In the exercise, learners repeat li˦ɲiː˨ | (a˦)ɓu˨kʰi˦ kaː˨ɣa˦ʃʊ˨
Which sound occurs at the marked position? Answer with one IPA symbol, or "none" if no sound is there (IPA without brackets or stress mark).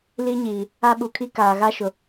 a˦